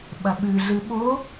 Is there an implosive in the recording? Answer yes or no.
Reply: yes